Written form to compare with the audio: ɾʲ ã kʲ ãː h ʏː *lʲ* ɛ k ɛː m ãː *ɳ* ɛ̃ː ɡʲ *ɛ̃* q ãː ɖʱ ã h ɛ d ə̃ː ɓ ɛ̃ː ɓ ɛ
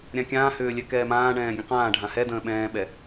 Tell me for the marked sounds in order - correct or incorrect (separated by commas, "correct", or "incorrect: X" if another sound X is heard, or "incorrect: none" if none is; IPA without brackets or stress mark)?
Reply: correct, correct, incorrect: ə̃